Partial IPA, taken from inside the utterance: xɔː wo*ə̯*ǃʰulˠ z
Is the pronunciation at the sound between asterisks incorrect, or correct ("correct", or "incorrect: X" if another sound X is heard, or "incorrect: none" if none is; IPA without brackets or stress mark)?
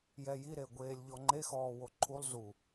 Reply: incorrect: none